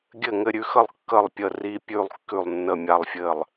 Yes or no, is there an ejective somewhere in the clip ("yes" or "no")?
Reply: no